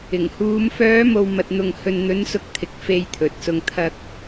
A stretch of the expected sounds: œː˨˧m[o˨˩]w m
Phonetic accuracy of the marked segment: incorrect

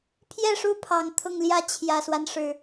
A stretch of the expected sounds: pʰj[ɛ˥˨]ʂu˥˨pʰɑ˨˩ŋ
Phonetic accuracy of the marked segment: correct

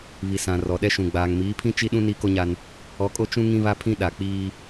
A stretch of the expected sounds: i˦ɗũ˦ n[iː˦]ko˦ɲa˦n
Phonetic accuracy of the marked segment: correct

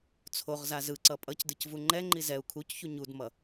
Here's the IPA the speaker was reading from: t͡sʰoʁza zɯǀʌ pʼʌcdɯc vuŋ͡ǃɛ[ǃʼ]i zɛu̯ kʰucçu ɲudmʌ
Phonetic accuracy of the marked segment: incorrect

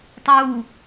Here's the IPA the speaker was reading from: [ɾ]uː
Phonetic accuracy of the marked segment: incorrect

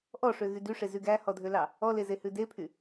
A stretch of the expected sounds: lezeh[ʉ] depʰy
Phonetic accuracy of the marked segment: correct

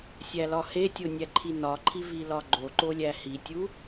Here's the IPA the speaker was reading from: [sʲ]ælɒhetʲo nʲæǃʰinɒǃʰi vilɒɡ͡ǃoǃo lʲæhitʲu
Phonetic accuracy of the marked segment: correct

